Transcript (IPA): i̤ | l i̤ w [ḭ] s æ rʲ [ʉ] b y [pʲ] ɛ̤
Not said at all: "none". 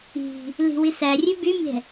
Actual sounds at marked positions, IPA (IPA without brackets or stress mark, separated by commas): i, ʉ, mʲ